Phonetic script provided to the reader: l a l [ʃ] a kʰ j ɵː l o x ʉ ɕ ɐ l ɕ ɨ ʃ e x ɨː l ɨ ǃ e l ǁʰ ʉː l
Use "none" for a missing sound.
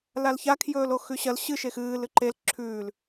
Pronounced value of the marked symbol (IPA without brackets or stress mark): ç